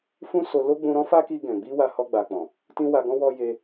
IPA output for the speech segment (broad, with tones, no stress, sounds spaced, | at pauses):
f ũ˦ s o˧ l o˦ ɡ͡b ũ˧ ɾ ɔ̃˦ f a˦ k i˧ ɡ ɛ̃˨ ɡ͡b i˧ w a˧ h ɔ˧ ɡ͡b a˨ k͡p ɔ̃˨ | t ĩ˦ w a˧ ɡ ɔ̃˦ w ɔ˦ j e˦